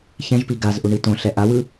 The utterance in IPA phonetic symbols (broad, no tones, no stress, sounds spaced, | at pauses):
ç ɛ̃ ʒ p i ɡ a z ʔ u ɳ i t õ ɬ ɛ ʔ a w ɯ